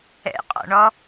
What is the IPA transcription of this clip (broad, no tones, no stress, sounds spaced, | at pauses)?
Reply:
ɛ̰ qʼ ɔ̰ ɳ ɔ